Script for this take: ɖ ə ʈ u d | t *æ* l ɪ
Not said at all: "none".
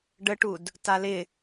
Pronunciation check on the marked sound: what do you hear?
a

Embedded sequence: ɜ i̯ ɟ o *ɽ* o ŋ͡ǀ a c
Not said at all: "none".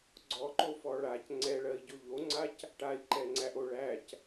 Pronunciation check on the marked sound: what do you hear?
ʎ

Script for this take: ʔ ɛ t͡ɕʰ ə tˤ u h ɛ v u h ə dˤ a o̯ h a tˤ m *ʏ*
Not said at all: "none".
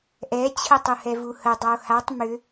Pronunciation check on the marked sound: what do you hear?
ʏ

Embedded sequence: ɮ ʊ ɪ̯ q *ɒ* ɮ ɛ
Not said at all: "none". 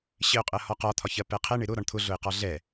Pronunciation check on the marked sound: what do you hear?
ɒ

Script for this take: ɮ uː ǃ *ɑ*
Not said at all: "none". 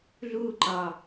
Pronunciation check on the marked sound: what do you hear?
ɑ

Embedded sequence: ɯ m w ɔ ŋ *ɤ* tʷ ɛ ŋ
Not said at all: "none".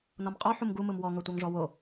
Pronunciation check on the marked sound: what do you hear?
ɤ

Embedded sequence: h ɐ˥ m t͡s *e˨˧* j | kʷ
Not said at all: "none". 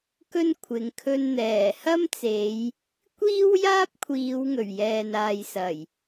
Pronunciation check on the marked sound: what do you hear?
e˨˧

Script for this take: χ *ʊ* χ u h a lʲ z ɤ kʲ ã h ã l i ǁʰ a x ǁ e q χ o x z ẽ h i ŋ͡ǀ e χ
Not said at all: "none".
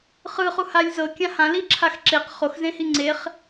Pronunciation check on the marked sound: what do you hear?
ɯ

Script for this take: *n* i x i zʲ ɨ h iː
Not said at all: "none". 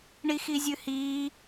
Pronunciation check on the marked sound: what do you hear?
ɳ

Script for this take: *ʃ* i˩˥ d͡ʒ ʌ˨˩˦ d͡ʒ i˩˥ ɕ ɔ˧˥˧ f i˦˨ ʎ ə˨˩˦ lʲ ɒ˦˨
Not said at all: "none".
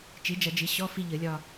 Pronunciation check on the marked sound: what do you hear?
t͡ʃ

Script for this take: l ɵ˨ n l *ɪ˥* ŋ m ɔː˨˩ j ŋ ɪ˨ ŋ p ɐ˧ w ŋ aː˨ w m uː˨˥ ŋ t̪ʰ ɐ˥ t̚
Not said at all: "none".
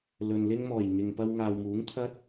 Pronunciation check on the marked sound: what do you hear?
ɪ˥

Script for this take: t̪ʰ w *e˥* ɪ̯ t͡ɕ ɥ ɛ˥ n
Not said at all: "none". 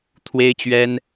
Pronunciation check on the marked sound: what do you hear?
e˥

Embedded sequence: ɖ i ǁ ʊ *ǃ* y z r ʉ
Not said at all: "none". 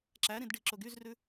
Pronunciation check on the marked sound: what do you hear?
ɡ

